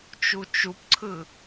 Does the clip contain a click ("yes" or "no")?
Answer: yes